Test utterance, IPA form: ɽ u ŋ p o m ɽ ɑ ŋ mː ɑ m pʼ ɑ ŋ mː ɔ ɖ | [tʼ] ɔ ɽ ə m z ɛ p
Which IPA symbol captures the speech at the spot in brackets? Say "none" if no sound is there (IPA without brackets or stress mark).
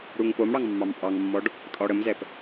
tʼ